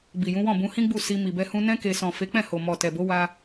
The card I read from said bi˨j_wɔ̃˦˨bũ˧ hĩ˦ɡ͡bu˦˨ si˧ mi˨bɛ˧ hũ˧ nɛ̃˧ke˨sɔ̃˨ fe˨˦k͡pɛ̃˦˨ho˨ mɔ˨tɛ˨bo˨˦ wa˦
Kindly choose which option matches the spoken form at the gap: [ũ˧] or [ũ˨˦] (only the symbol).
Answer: ũ˨˦